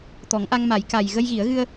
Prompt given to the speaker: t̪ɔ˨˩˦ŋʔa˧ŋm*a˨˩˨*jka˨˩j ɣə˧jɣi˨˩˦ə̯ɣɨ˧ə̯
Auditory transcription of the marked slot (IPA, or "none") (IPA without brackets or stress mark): a˨˩˦